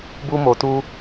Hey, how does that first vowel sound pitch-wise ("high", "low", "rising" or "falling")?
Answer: high